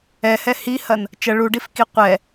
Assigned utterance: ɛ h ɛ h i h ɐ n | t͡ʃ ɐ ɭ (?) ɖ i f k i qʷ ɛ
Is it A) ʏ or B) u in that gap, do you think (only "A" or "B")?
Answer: B